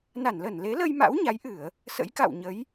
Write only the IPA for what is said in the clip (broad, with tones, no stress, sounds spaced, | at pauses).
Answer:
n a˧˩ n l ə˧˩ n l e˨˦ l ə˧ j m a̰˧˥ w ɲ a˨˦ j ʔ ɨ˧˩˨ ə̯ | s ə̰˧˥ j k a̰˧˨ w ɲ ə˨˦ j